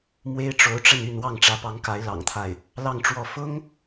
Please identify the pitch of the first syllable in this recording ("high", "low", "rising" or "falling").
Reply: high